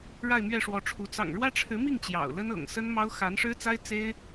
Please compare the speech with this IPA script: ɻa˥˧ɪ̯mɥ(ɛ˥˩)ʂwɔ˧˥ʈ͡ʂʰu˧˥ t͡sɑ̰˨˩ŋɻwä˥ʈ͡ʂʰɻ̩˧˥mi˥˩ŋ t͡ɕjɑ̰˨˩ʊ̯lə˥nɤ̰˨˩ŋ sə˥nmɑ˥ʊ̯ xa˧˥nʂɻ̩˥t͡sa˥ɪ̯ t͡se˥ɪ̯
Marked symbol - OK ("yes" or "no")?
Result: yes